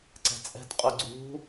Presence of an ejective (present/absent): present